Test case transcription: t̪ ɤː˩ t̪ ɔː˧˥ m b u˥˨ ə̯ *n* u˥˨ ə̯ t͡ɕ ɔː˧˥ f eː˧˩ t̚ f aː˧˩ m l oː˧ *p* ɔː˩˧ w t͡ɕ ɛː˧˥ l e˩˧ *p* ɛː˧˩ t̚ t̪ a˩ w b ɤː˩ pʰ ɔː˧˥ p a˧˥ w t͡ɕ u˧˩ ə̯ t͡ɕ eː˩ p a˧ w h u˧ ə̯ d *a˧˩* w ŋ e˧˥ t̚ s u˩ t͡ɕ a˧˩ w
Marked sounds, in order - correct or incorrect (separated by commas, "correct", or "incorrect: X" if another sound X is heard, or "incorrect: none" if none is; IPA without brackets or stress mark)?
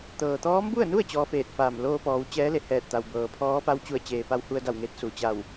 correct, correct, incorrect: h, correct